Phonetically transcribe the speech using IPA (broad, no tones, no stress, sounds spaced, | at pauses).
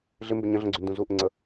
ɮ ɪ m b ɪ ɲ ə̃ ɮ ə̃ ɡ͡ǀ y n d ũ z u ʔ ɪ ŋ͡ǀ ə